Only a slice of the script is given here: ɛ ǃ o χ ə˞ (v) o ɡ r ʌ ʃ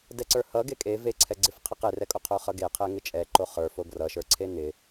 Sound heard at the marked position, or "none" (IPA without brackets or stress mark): f